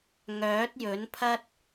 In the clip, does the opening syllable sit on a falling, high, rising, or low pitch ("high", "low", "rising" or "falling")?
rising